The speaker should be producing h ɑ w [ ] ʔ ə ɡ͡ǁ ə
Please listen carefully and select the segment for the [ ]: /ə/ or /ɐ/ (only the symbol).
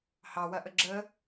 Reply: ɐ